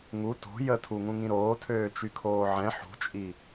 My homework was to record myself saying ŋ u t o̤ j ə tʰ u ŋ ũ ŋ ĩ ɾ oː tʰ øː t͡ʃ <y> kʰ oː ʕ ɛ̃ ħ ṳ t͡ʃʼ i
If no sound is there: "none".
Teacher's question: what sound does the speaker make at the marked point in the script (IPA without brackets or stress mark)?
y